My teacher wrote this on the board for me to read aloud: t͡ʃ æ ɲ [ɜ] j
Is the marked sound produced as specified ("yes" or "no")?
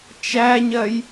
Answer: yes